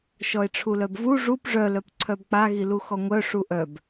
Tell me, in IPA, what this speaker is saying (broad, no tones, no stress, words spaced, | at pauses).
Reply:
ʃɔe̯ʈ͡ʂʰulœbvu ʐup ʐœlœp ǀʰœbk͡pa ɣiluxɔŋʷœ ʂuʔœb